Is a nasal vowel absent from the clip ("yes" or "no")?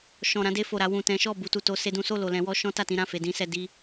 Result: no